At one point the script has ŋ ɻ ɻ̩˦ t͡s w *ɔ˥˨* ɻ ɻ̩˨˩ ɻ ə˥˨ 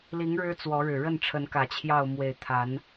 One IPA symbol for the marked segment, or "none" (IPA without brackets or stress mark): ɔ˨˦